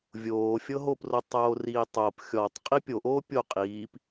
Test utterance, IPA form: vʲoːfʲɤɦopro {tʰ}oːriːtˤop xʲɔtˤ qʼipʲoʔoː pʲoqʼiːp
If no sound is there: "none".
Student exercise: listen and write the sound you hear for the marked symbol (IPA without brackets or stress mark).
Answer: tˤ